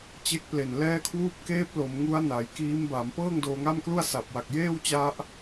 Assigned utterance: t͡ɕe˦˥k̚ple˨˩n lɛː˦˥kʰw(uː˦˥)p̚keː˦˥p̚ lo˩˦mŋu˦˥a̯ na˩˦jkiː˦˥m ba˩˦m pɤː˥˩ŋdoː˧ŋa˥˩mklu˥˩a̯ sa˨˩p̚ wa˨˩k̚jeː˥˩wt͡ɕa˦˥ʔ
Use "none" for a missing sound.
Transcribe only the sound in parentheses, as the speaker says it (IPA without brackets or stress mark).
uː˦˥